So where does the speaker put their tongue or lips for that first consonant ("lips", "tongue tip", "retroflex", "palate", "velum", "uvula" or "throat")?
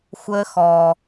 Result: velum